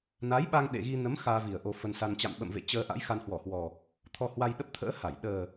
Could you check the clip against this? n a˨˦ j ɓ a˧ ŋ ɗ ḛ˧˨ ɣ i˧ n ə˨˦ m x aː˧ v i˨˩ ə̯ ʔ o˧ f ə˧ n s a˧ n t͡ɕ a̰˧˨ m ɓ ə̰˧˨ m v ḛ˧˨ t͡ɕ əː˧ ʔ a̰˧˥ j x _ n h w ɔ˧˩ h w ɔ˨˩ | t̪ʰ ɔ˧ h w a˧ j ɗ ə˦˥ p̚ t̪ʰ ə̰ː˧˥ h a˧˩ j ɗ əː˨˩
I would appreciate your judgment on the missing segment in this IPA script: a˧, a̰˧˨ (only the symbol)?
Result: a˧